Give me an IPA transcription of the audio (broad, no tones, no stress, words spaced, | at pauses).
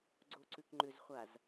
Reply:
ɡ͡ǀoǀʉkŋ͡ǃʏzχʷaz